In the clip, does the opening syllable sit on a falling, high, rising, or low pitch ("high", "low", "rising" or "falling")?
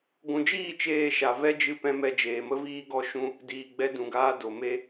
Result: low